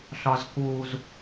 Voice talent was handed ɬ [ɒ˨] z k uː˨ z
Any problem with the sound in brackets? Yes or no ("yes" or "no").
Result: no